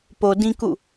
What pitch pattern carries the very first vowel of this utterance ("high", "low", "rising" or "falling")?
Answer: low